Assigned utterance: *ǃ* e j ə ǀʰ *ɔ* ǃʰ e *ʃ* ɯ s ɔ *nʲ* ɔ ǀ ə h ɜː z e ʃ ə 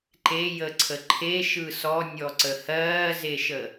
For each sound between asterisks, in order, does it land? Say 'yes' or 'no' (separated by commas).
yes, no, yes, yes